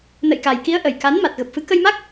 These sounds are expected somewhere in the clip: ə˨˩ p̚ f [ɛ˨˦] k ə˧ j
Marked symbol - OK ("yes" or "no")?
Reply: no